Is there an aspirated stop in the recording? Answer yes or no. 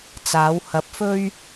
no